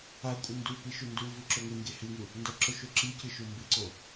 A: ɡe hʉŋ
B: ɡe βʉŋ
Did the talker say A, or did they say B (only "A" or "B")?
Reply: A